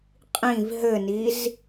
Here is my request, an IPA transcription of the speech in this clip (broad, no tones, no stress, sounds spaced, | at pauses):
qʼ ĩ v ɦ ɘ n i z